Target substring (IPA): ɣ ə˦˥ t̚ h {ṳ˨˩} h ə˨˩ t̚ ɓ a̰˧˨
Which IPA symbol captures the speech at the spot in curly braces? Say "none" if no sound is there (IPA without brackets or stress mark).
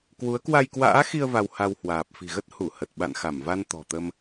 u˧˩